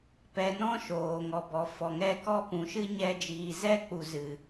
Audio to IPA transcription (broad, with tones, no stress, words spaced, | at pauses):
pɛ˧nɔ̃˦ ʃoː˨ŋɔ˨bɔ˨ fɔ˨ŋɛ˦˨ kɔ˦pũ˨˦ʃɨ˦ ɲɛ˧d͡ʒiː˨zɛ˦k͡pu˨ zɨ˨